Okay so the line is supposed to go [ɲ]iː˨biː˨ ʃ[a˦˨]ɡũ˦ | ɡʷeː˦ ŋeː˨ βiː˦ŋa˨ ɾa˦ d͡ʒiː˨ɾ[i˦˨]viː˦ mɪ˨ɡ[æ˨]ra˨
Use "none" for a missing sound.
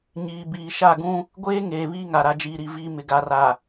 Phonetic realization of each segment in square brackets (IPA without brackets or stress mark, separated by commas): ɲ, a˦˨, i˦˨, a˨